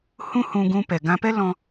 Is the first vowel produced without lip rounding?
no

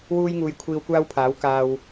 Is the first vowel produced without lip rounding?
no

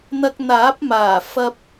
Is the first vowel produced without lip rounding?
yes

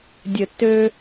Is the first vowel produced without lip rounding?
yes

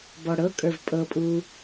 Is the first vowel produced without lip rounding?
no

